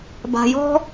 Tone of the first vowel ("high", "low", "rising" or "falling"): low